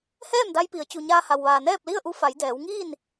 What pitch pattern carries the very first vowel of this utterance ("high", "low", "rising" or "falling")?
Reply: falling